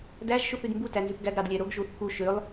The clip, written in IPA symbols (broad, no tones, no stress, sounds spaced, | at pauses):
d æ ʒ ʃ u θ y d m b u t æ n z y p ɡ æ ɡ ɾ ɑ d lʲ æ ɾ o ɡ ʒ u θ k u ʃ ø lˠ